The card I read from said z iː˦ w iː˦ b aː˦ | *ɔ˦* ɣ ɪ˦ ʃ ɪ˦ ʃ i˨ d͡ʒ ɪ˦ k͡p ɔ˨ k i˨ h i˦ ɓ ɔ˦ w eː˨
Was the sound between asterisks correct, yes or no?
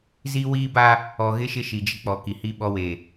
no